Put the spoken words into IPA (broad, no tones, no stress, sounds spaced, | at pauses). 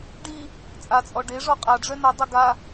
ɖ i | t͡sʼ a t͡sʼ ɔ ɖ e ʐ ɔ qʼ a ɖ͡ʐ œ n o dˤ e ɡ a